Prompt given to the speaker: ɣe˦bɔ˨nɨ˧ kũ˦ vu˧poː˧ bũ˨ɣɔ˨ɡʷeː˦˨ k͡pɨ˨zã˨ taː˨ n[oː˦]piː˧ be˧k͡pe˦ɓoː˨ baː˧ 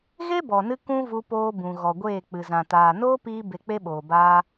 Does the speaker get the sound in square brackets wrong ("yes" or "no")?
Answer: no